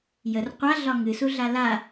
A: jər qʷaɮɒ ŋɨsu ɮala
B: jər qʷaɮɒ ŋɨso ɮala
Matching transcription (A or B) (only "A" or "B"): A